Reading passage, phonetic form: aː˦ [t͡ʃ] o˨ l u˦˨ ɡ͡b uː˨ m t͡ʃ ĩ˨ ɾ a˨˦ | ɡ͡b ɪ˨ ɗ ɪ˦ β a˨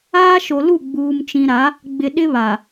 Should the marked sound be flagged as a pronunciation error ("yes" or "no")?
yes